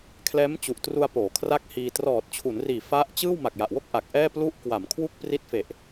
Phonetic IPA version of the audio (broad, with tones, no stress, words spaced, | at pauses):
kʰlɛː˦˥mt͡ɕu˨˩ʔtru˧a̯ poː˩˦kʰra˥˩k̚hiː˧ trɔː˨˩t̚t͡ɕʰu˩˦nriː˨˩ fa˦˥ʔ t͡ɕɯː˥˩w ma˨˩k̚ja˨˩ʔwo˥˩k̚ ʔa˨˩k̚ ʔɛː˥˩ plu˦˥ʔkwa˩˦m kʰwu˥˩k̚pri˦˥t̚fe˨˩ʔ